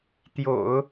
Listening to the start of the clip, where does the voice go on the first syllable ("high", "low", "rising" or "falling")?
low